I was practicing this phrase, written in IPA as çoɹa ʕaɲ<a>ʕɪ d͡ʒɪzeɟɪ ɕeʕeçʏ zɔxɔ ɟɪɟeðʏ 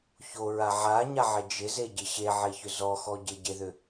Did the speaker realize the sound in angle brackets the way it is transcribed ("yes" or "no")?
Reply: yes